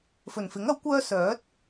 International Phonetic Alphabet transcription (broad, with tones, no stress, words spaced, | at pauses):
fɵ˨˩nfɪ˨˥ŋɐ˨˥w kʷœː˥ sœː˨˥t̚